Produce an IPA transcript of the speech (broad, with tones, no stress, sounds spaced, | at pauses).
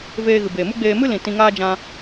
v eː˧ ɣ ɨ˨ b eː˨ m u˦ ɡ͡b eː˧ m ɨ˦ l ĩ˨ t ĩ˧ ŋ aː˦ d͡ʒ ã˧